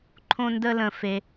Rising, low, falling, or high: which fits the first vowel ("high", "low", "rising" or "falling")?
high